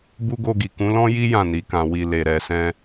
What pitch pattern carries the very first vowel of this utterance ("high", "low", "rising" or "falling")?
high